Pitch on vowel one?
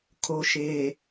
low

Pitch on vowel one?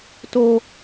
high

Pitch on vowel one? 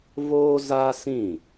high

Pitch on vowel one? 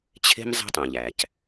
high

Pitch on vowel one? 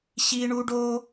high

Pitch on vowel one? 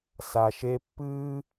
low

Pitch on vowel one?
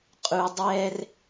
low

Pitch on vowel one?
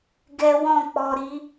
high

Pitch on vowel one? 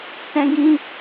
high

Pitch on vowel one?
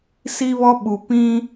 high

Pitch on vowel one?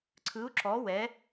rising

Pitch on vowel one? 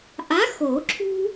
rising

